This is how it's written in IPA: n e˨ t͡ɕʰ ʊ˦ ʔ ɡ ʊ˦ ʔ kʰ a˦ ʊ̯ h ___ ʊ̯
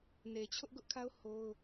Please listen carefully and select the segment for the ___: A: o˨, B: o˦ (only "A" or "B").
B